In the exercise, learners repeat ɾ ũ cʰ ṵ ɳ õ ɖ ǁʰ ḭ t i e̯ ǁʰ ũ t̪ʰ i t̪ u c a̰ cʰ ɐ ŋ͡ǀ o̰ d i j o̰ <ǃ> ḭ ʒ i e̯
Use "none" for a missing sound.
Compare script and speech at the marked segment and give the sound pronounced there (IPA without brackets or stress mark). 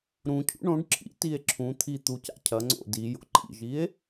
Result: ǃ